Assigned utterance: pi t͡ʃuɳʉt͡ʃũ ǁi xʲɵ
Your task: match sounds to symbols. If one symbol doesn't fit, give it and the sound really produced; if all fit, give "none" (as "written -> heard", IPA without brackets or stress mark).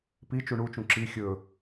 ʉ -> u